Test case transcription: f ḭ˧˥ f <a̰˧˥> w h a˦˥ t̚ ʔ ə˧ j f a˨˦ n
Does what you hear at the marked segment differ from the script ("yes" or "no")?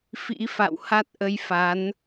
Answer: yes